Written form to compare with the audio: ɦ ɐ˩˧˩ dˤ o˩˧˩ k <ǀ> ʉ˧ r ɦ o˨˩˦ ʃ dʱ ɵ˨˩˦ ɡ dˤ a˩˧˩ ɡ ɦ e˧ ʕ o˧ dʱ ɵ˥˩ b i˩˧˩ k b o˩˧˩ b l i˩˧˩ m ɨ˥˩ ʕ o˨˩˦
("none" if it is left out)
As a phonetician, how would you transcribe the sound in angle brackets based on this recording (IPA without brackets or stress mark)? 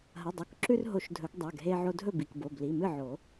ǁ